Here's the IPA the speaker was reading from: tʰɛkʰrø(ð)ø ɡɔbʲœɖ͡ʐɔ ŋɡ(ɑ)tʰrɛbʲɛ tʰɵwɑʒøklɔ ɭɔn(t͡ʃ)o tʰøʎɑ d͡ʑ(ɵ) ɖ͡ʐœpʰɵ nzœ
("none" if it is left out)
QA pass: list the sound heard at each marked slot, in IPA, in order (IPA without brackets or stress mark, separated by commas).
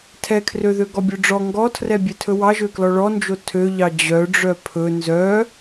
ð, ɔ, d͡ʒ, œ